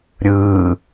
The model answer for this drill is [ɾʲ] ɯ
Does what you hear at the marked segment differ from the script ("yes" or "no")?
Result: no